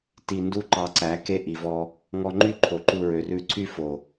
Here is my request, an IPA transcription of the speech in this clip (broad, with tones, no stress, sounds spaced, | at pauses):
t i˧ n d u˦ ǃ ɑ˧ ǀ æ˨˦ k e˧ ʔ i˨ v ɔ˧ | ŋ ɔ˧ ŋ͡ǃ y˦˨ ǃʰ o˨ ǃ u˧ ɹ ø˨ r ʉ˧ ǀʰ y˦ f o˨